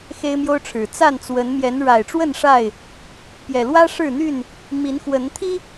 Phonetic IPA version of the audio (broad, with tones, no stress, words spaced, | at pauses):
xe˦ɪ̯mjo˦ʊ̯ʈ͡ʂʰɻ̩˨˩ t͡sa˥˨nt͡swə˨˦n mjɛ˨˦nɻa˨˩ɪ̯ʈ͡ʂwə˥˨n ʂa˥˨ɪ̯ | pjɛ˨˩lwä˦ ʂɻ̩˥˨n̪y˥˨n | mi˨˦nxwə˨˦n t̪ʰi˦